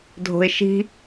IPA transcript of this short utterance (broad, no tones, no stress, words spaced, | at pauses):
dʱo̤ɪ̯ʃi̤